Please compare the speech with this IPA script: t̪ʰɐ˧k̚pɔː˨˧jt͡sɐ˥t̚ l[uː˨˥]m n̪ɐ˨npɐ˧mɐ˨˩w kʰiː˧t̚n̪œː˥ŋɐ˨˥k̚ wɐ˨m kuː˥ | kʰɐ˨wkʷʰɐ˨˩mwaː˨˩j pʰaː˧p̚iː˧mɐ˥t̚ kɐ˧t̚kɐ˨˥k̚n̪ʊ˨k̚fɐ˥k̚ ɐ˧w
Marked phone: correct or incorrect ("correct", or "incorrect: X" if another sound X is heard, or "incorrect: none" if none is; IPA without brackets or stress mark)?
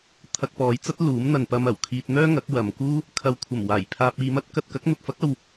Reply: correct